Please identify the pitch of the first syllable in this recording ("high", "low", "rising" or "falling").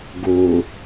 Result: low